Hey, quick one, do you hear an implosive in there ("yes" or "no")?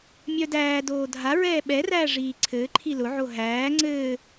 yes